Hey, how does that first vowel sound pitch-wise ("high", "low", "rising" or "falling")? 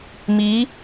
rising